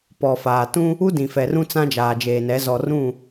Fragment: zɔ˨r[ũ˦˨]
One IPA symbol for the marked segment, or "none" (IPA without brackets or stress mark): ũ˦˨